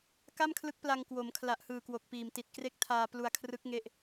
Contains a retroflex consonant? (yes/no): no